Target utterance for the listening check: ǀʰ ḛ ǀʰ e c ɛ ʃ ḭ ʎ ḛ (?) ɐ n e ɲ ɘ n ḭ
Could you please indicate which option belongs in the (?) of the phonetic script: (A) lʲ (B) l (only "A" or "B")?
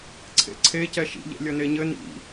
A